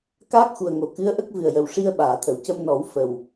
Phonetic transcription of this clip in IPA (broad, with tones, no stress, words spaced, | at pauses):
kaː˦˥k̚xu˨˩ə̯ŋo˨˩˨ kɨ˧˥ə̯ʔə˦˥k̚ vɨ˨˩ə̯jə˨˩wʂi˧ə̯ ɓaː˨˩˨t̪ʰə˨˩˨w cə˧mnɔ˨˩˦w fə˨˩w